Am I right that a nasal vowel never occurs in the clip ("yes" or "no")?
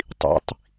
yes